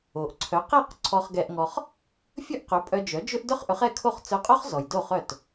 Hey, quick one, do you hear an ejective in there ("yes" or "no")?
yes